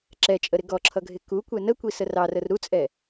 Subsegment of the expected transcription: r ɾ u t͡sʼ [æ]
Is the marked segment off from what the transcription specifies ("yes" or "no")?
yes